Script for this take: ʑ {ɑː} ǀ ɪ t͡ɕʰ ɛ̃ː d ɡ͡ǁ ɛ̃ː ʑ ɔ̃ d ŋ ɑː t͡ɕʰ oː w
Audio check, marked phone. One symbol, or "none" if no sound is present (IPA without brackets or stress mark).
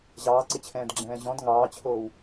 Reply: ɑː